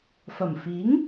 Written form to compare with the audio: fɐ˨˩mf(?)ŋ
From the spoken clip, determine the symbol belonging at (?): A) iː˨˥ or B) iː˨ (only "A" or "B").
A